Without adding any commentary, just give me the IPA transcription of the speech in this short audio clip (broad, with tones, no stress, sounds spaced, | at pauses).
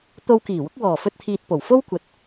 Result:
t̪ o˧ w k iː˨˩ w ʊ˨˥ k̚ w ɔː˨˩ f ɵ˧ t̚ t̪ʰ iː˨ t̚ p o˨˩ w f o˥ w kʷ ɐ˨ t̚